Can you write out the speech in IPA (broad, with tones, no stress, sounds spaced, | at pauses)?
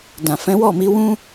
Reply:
d ã˨ f ɛ̃˨˦ w ɔ˦˨ m i˨˦ w ũ˦